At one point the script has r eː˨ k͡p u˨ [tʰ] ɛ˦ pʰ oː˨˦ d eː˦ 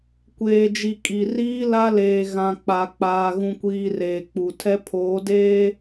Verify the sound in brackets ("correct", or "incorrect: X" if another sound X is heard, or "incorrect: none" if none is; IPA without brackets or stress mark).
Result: correct